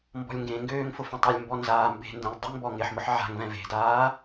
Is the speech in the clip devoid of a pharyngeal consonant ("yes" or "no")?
no